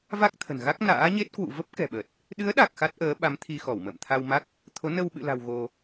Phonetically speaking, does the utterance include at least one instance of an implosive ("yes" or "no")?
yes